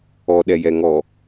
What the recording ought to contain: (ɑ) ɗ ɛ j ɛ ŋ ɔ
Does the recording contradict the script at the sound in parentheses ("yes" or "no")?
yes